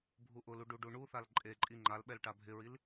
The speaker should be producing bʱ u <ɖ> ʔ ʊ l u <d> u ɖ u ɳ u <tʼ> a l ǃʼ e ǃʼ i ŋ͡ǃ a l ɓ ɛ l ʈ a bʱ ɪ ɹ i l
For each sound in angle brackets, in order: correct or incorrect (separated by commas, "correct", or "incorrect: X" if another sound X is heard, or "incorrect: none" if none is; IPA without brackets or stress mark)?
incorrect: none, incorrect: ɖ, incorrect: θ